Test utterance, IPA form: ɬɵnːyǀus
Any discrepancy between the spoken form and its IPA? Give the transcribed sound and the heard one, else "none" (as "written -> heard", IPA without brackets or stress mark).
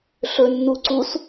y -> u